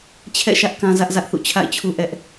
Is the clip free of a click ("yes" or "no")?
yes